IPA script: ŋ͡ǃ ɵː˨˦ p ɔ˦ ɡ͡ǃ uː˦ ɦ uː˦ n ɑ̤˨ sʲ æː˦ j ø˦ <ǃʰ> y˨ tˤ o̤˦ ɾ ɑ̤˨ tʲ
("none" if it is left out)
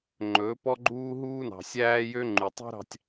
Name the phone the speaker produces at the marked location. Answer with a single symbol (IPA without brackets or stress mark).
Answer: ŋ͡ǃ